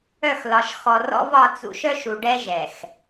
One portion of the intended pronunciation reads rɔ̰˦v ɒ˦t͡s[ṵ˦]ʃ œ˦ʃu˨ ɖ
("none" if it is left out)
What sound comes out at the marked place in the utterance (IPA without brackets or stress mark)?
ṵ˦